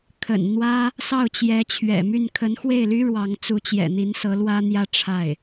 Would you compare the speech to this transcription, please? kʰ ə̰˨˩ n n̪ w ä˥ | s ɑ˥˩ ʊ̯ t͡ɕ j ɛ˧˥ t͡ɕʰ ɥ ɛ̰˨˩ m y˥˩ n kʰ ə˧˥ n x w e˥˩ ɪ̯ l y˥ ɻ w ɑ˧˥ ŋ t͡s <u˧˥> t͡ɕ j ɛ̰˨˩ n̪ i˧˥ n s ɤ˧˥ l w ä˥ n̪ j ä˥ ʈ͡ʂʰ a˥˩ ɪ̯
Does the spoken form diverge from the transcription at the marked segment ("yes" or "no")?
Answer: no